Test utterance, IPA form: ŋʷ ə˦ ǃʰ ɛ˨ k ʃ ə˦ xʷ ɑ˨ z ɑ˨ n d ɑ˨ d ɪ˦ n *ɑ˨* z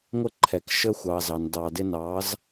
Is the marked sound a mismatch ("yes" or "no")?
yes